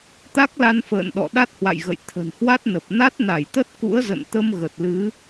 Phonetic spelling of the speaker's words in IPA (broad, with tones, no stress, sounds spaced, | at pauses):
t̪ a˦˥ k̚ l a˧ n f ə̰ː˧˨ n ɗ ɔ̰˧˨ ɗ a˦˥ t̚ h w a̰˧˨ j ɣ ə̰˧˨ j t̪ʰ ə̤˨˩ n h w a˦˥ t̚ n ə˨˩ p̚ n a˦˥ t̚ n a˧˩ j t̪ ə˦˥ t̚ k ṵ˧˥ ə̯ z ə̰˧˨ n t̪ ə˧ m ɣ ə˨˩ t̚ l ɨ˨˦